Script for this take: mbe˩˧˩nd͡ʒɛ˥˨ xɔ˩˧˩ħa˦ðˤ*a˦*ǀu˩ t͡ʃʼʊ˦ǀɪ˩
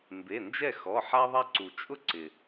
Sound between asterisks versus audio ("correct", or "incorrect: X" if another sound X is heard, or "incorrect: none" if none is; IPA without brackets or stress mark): correct